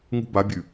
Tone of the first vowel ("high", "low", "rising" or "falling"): high